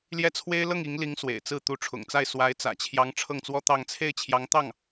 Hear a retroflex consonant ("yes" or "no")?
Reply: yes